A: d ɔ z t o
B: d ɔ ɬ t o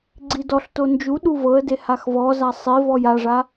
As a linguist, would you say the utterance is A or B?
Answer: B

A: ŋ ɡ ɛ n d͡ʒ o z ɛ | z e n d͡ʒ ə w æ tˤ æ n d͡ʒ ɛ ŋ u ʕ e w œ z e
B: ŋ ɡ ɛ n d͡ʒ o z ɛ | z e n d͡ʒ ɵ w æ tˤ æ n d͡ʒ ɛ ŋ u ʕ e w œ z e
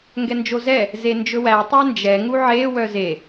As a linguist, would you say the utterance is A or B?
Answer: B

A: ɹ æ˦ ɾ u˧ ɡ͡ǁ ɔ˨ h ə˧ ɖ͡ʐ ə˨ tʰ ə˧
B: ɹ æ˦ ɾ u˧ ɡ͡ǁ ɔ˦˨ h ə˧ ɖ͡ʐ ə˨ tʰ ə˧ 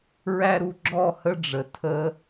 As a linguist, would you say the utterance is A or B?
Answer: B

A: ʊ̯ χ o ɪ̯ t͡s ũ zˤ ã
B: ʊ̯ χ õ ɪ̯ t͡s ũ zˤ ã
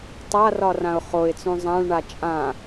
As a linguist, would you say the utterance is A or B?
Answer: A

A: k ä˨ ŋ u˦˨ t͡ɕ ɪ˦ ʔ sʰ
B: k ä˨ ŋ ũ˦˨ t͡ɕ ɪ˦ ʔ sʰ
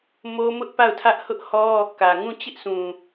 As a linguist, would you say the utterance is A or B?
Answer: B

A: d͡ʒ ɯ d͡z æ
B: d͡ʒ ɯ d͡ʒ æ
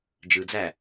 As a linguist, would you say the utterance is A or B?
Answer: A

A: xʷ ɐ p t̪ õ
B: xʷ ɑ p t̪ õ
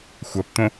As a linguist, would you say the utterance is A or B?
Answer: A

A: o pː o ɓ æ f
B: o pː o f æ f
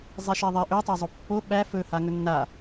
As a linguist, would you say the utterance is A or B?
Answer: A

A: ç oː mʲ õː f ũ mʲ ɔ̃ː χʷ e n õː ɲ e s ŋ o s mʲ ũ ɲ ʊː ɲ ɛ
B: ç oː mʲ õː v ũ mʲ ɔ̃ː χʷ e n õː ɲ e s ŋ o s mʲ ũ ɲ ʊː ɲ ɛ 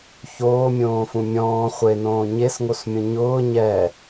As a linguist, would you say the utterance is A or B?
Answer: A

